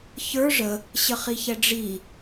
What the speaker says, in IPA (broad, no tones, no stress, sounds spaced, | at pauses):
ç ə˞ ʐ ə | ɕ ə χ i ç ɛ ɖ͡ʐ i